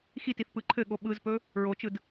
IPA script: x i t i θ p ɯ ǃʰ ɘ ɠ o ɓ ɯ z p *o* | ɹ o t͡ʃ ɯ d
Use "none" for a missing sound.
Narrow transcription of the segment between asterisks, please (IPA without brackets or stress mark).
ɵ